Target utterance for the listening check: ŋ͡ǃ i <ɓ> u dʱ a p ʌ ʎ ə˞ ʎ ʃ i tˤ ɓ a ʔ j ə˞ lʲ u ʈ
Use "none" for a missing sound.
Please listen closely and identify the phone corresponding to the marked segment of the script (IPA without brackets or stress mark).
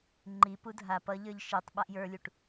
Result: p